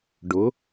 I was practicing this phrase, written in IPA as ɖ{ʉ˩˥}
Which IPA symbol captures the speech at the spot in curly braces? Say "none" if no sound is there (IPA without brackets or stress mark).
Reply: ʊ˩˥